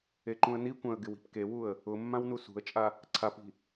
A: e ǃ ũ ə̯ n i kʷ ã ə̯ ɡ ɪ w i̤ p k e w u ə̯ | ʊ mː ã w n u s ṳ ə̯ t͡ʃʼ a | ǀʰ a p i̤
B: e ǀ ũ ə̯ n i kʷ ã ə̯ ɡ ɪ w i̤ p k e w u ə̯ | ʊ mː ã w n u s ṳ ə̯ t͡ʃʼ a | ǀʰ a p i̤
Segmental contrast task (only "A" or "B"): A